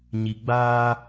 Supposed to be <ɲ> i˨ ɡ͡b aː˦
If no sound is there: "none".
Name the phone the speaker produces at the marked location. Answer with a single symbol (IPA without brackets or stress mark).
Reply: ɲ